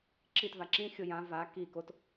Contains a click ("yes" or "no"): yes